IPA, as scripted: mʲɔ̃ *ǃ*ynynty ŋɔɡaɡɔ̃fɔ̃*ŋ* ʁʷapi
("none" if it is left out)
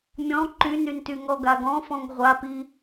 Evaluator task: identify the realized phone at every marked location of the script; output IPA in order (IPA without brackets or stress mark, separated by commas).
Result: ǃ, ŋ